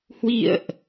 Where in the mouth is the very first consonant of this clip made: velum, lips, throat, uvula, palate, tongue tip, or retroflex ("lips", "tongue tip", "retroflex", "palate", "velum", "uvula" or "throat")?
throat